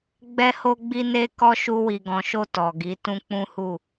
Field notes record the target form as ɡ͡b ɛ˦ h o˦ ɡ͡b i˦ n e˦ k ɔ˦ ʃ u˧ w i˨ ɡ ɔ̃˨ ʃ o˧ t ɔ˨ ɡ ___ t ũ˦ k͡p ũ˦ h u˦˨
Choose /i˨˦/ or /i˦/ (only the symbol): i˨˦